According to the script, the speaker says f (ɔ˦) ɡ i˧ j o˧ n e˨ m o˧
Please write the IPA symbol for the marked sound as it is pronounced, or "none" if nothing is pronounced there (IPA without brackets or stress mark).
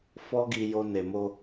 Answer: ɔ˦